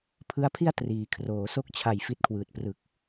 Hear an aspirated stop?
yes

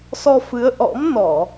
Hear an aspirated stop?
no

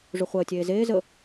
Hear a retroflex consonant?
yes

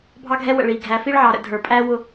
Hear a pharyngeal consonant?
yes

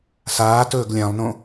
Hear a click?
no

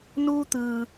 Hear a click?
no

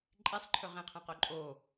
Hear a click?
yes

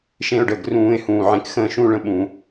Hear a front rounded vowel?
no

